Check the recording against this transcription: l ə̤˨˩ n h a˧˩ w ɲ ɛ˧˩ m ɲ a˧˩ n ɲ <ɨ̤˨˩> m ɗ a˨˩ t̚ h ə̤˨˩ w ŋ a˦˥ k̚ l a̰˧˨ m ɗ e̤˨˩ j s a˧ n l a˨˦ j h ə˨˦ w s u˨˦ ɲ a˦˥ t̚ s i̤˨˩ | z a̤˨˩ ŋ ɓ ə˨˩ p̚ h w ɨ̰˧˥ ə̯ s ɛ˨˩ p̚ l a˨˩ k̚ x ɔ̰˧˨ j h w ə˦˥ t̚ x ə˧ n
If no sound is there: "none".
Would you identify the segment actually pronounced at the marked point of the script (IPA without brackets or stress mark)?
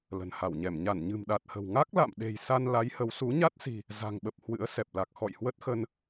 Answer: ɨ̤˨˩